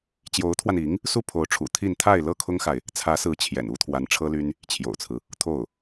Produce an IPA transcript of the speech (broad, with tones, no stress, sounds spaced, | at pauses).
t͡ɕ j o˧˥ ʊ̯ t̪ʰ w a˧ n i˧˥ ŋ | s u˥˩ pʰ o˧˥ ʊ̯ ʈ͡ʂʰ ṵ˨˩ t̪ʰ i˥˧ n t̪ʰ a˥˧ ɪ̯ l ɤ˥˩ kʰ ʊ˥ ŋ x a˨ ɪ̯ | t͡sʰ ä˧˥ s ɹ̩˧˥ t͡ɕʰ j ɛ̰˨˩ n u˥ t̪ʰ w a˧˥ n ʈ͡ʂʰ ɤ˥ l y˥ n | t͡ɕʰ j o̰˨˩ ʊ̯ t͡sʰ ɹ̩˦ | t̪ʰ o˥˩ ʊ̯